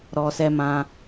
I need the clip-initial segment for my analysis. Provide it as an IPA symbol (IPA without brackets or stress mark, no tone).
ɾ